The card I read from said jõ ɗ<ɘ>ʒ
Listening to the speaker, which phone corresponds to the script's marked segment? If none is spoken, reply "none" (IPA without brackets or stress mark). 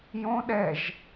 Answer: ɛ